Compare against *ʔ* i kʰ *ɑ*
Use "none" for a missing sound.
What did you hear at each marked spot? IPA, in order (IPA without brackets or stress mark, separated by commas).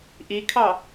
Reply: ʔ, ɑ